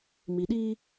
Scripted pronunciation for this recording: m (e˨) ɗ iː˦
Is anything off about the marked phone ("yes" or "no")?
yes